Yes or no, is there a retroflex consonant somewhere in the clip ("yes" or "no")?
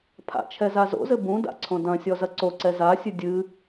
no